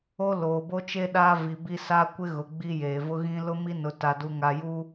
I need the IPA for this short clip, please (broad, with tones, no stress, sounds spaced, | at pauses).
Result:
o˦ l oː˨ b o˦ t͡ʃ e˦ ɗ aː˦ v i˨ b i˦ s a˦ kʷ ɪ˦ ɣ ʊ˨ ɡ͡b i˦ j eː˨ v ʊ˦ ɣ ĩ˦ l ʊ˦ m i˦ n ʊ˨ t a˨ d u˨ ŋ a˨ j u˦